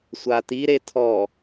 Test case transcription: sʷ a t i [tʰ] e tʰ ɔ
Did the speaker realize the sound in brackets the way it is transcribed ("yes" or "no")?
no